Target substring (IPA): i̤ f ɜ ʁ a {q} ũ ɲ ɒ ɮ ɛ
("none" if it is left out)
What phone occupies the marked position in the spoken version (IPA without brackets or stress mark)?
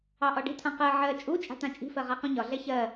q